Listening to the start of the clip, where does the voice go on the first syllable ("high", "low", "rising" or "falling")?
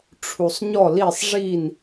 low